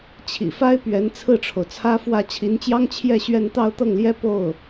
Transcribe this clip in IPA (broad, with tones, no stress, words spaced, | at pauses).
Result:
t͡ɕʰḭ˨˩fa˥ɪ̯pɥɛ˧˥n t͡sʰɹ̩˥˩ʈ͡ʂʰo˩ʊ̯t͡sʰä˥fwä˥˩ t͡ɕʰi˧˥nt͡ɕjɑ˥ŋ t͡ɕʰjɛ˥˧ɕɥɛ˥˧n t̪ɑ˥˧ʊ̯t̪ɤ˥˩ŋljɛ˥ po˥˩ʊ̯